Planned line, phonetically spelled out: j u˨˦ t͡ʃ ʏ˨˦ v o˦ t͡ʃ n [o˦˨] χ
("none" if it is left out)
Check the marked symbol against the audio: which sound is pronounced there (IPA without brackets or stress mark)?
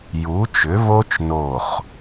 o˦˨